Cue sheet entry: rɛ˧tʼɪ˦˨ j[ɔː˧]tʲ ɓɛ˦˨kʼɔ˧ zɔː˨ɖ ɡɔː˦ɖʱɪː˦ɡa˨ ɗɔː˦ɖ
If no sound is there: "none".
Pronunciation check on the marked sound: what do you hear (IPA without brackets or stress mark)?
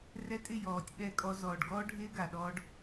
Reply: ɔː˨